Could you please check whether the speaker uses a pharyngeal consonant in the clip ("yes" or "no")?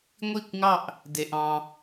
no